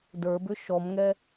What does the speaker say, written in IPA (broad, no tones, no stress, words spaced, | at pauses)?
də˞bʏ ʃɔmŋɛ